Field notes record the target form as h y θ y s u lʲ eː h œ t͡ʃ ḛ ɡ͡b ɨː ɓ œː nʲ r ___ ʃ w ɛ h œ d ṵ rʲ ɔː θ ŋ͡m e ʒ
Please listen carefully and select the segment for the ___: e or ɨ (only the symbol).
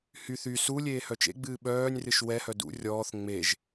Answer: ɨ